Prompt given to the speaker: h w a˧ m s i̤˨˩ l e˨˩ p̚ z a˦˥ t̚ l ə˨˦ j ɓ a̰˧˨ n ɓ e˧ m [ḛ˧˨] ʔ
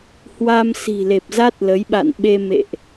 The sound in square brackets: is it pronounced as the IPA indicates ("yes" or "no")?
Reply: yes